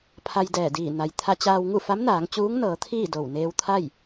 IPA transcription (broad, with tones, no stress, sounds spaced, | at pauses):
pʰ a˧ j d ɛː˧˩ d iː˧˩ n a˩ j t̪ʰ a˧ t͡ɕ aː˧ w ŋ u˥˨ f a˧˥ m n aː˩˧ ŋ t͡ɕ uː˧˥ ŋ n ɤː˩˧ t̪ʰ iː˥˨ d o˧˩ w n eː˧ w t̪ʰ a˥˨ j